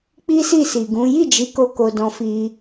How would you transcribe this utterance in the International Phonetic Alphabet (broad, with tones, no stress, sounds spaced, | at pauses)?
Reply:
k͡p i˦ s i˦˨ s i˨ ɡ ũ˨˦ j i˦˨ d͡ʒ i˨˦ k o˧ k o˧ d ɔ̃˧ f i˧